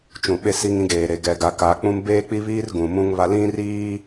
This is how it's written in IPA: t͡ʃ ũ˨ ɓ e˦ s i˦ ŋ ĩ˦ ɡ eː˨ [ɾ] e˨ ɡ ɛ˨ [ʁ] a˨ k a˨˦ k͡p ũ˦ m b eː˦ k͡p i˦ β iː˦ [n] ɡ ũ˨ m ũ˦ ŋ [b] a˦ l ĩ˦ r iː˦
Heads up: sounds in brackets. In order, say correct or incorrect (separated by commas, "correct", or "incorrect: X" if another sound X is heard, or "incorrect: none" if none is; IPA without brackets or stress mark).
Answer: correct, incorrect: ɡ, incorrect: r, incorrect: β